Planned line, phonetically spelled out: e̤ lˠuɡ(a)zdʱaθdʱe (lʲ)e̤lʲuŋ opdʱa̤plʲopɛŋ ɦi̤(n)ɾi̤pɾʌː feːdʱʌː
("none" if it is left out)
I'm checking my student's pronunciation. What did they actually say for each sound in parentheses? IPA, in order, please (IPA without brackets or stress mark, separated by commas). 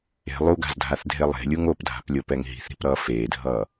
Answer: a̤, lˠ, θ